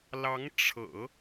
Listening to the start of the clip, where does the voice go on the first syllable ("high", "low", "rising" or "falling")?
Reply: rising